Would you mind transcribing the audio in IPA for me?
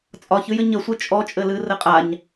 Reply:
t͡sʼ ɒ ç ɨ j ɘ ɲ ə sʷ ɨ t͡ʃʼ ɔ t͡ʃʼ ɘ l ɨ r ɘ qʼ a ɲ

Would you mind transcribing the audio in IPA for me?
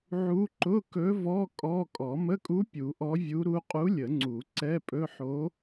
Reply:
ʕ u˧˥ ǃ ʊ˧˥˧ k ɵ˧˥ v ɔ˧˥˧ kʼ ɔ˧˥˧ kʼ ɔ˨˩˦ m ə˧˥˧ kʼ u˧˥ pʲ u˨˩˦ ʔ ɔ˧˥ vʲ u˧˥ ɾ u˧˥ qʼ u˧˥ lʲ ə˨˩˦ ŋ͡ǀ u˨˩˦ ǀ ɛ˧˥˧ pʼ ɵ˧˥˧ ħ o˧˥

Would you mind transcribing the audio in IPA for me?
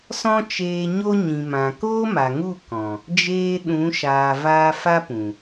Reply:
s ɔ̃˦ t͡ʃ eː˧ ɲ o˦ ɲ ĩ˨ m ã˨ k oː˦ m a˨ ŋ u˦˨ k ɔ̃˨ | d͡ʒ eː˧ ɗ ũ˨˦ ʃ aː˨ v aː˧ f a˦ p ũ˨

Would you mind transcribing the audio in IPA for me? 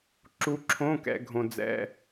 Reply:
ǁ u˧˥ ǁʰ õ˧˥˧ k ɛ̰˧ ɡʱ õ˧ d͡z ɛ̰˧˥˧

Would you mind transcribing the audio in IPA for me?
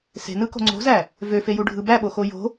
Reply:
s e̤ n ɯ k o̤ ŋ͡ǀ o̤ z æ | v ø f e j u ɖʱ ɯ b æ ɓ o x o j o̤

